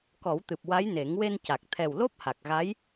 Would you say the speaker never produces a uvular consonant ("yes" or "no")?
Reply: yes